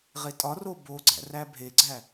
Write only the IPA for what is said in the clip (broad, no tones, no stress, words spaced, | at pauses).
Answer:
ʁetʼɒro boɡ͡ǀæ̰r æbʱeɡ͡ǀæ